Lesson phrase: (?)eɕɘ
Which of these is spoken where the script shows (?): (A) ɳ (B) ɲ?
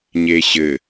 B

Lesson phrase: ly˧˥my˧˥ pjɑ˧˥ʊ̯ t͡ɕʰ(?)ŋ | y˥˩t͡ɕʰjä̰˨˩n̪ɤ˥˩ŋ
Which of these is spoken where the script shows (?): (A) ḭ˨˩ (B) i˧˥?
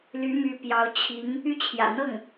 B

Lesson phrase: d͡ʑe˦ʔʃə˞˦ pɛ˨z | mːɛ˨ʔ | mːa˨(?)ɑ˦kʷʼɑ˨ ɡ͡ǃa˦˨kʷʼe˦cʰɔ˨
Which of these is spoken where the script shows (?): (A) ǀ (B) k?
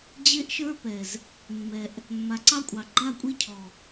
A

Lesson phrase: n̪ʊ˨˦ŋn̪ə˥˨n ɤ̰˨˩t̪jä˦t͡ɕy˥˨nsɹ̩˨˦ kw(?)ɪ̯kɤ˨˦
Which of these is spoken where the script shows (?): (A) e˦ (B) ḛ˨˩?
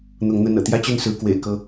B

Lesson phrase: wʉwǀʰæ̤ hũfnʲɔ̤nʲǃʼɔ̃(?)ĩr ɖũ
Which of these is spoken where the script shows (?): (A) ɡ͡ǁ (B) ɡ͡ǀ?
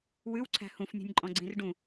B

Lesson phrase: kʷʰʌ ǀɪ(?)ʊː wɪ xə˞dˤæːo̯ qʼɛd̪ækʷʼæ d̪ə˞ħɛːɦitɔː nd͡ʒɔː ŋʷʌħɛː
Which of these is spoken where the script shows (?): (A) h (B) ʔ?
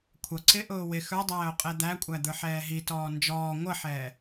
B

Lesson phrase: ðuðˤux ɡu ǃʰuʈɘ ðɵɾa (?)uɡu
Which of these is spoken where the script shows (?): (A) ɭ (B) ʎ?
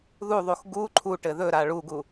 A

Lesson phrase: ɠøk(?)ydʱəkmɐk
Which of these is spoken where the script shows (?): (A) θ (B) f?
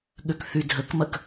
A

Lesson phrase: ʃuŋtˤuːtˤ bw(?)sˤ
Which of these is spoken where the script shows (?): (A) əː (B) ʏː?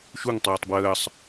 A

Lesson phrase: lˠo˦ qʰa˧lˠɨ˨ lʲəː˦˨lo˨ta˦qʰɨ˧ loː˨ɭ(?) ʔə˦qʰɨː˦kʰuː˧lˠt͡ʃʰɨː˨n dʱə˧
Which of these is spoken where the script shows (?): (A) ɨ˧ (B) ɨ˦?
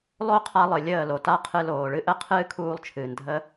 A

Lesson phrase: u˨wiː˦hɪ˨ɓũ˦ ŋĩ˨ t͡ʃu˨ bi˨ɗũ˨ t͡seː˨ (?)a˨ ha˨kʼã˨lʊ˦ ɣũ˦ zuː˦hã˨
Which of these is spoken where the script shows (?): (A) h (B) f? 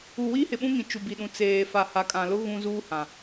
B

